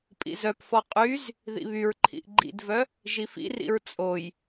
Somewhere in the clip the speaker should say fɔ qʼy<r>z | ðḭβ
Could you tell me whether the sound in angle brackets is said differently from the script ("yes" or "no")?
yes